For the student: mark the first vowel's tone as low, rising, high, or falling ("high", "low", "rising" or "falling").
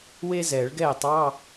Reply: high